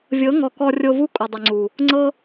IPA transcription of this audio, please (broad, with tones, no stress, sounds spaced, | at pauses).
vʲ ɤ˨˦ ŋ ɔ˨ k ɔ˧ rʲ o˧ v u˦ kʼ u˨ dˤ ɯ˨ ŋ͡ǀ u˨ | ŋ͡ǀ ɤ˦